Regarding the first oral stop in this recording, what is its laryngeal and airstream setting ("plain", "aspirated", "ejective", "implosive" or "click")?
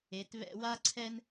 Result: plain